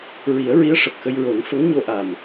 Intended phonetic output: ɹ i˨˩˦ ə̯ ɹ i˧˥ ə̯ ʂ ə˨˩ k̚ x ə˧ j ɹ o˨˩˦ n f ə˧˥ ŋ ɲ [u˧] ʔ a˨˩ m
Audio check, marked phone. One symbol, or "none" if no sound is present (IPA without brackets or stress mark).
o˧